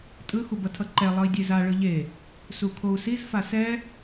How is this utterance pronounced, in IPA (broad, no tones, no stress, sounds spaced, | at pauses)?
tʼ ɯ x u b ʌ tʰ ʌ ǃ ɛ lˠ ʌ i̯ dʲ e z a ɭ ɯ ʎ e | s u kʰ o u̯ s i z f a s ɛ